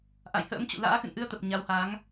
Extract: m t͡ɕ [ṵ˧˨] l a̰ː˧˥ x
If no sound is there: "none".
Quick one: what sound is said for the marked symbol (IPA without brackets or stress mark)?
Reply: ṵ˧˨